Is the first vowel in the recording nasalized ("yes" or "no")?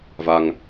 no